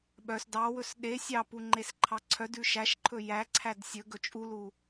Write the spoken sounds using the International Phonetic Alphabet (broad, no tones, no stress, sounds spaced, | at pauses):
ɓ œ s d ɑ w ɵ s ɗ e sʲ ɑ p u ŋ͡ǃ e s ǃʰ ɑ ǀʰ œ d ʉ ʃ æ ʃ ǃʰ ɵ j æ ǀʰ æ d sʲ ɵ ɡ ɵ t͡ʃʼ u l u